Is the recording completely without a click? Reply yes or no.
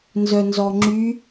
no